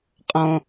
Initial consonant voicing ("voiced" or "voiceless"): voiceless